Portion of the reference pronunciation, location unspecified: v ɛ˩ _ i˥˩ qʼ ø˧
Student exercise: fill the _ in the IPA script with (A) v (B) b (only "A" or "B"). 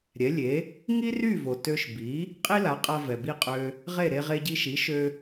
B